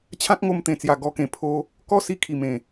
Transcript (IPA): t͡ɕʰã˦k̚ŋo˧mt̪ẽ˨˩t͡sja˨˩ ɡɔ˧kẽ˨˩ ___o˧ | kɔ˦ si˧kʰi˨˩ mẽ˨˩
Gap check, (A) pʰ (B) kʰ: A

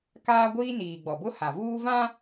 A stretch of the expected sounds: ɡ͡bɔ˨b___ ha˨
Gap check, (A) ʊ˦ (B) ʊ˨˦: A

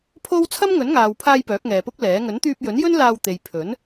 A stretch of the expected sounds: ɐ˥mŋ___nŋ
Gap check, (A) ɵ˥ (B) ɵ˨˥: B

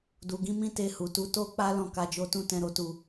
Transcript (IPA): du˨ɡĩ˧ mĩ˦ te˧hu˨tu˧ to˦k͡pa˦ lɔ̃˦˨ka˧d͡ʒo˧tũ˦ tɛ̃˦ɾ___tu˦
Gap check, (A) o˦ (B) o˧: A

